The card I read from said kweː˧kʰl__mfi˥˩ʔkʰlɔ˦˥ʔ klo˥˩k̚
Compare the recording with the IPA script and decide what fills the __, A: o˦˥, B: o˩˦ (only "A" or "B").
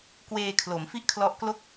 B